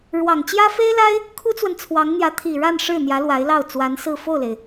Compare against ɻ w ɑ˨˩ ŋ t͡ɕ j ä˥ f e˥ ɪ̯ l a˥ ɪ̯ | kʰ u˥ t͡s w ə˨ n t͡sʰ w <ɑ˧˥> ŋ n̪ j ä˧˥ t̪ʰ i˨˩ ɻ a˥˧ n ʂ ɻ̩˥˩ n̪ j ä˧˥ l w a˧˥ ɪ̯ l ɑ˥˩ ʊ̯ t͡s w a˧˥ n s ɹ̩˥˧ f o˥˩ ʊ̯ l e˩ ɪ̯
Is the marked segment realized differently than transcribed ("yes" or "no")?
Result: no